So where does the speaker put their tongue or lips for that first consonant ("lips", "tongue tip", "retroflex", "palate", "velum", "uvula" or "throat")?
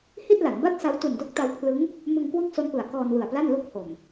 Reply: throat